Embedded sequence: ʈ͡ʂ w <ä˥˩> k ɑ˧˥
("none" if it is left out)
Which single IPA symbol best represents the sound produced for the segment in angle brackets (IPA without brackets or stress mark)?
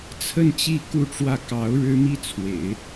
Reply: ä˥˩